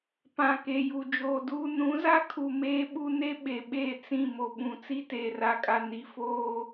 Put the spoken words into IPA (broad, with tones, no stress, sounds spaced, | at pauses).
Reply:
p ã˨ k e˨ j u˨ d͡ʒ oː˨ d uː˦ n ũ˨˦ z a˦ kʰ u˨ m eː˦ ɓ u˦ n e˦ ɓ e˨ ɓ eː˦˨ t͡s ĩ˦˨ m o˨ ɓ ũ˨ t͡s i˦ t eː˨ r a˨ kʼ a˨ n i˨ f oː˦